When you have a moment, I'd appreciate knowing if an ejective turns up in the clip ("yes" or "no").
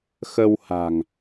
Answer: no